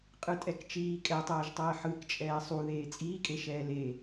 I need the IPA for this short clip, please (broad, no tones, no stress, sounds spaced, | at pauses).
qʼ ɯ tʼ ɛ k t͡ʃ iː kʼ ɛ tˤ ɛː ʒ tˤ ɛː ħ ɯ k t͡ʃʼ ɛː sˤ u ð eː t͡sʼ iː kʼ e ʃ ɛː l e